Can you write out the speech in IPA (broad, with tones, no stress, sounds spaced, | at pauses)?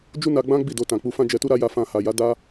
d͡ʒ u˦ n a˧ ɡ͡b ã˦ ɡ͡b i˦˨ d o˧ t ã˨ k͡p u˧ f ã˦ d͡ʒ ɛ˧ t u˦ ɾ a˦ j a˧ f ã˧ h a˨ j a˨˦ d a˦